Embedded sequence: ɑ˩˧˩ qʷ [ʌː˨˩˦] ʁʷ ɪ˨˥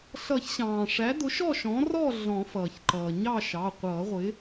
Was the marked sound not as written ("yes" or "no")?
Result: no